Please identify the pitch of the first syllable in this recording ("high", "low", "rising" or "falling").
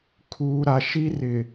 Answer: low